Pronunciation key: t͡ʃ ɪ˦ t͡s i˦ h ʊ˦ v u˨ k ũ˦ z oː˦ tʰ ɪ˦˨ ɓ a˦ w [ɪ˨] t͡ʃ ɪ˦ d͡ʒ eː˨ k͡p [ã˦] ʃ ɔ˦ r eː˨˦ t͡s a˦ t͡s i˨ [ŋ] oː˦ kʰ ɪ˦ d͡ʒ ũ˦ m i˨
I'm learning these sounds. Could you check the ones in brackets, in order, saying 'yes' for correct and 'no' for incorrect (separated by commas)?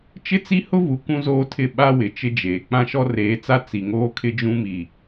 yes, yes, yes